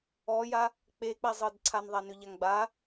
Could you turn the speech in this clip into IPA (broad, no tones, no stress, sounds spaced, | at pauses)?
ɔ j a | k͡p e k͡p æ zˤ ɤ d ǀʰ a n ðˤ a n ʏ ʎ a ŋ ɡ͡b a